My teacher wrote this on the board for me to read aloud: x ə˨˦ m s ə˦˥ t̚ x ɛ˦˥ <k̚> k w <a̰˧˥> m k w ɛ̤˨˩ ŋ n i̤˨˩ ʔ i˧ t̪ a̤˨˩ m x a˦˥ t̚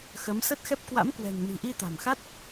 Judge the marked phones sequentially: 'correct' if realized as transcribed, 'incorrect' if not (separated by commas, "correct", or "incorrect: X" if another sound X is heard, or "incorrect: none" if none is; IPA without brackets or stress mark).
incorrect: p̚, correct